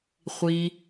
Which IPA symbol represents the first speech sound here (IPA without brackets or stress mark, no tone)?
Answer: χʷ